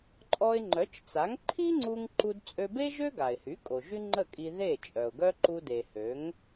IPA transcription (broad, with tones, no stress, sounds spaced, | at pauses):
ǃʼ ɔ˧ ɪ̯ ŋ͡ǃ œ˩˥ t͡ʃ t͡s a˩˥ ŋ ǃʰ i˥ ŋ͡ǀ u˧ ŋ ǃ u˧ d t͡sʼ ø˧ b e˥ ʒ ø˥ ɡ a˩ ɪ̯ h y˩˥ kʼ o˩ ʒ y˥ ŋ͡ǃ ə˥˩ kʼ i˧ ð e˥˩ t͡ʃʼ œ˩ ʊ̯ ɡ œ˥ ǃ u˧ d e˩ h ø˩˥ ŋ